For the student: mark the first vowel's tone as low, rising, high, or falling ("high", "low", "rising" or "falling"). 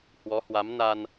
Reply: rising